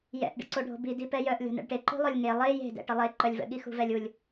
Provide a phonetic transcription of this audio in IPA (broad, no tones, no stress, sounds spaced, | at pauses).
j ɛ̰ ʔ ɖ ə̰ ǀ o ɖʱ o̤ b i d i p ɛ j œ ʔ lʲ o̤ n ɛ̰ ɖ ʈ e ǃ o̤ lˠ œ lʲ ŋ e lˠ e j e̤ d ɛ̰ ʈ ə lˠ e ǃ œ lʲ v ə̰ ɠ i x ṳ v ɛ lʲ u lʲ